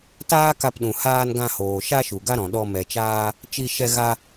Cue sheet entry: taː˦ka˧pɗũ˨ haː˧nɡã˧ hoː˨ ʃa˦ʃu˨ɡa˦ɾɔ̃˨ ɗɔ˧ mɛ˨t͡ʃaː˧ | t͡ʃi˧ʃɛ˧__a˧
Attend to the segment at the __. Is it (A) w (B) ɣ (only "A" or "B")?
B